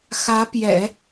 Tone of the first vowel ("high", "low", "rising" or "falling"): rising